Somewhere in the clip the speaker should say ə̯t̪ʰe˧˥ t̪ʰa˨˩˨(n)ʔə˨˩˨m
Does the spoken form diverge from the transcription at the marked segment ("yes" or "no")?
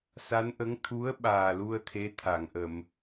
yes